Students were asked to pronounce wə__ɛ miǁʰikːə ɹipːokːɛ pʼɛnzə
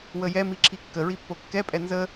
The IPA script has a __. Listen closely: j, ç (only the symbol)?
j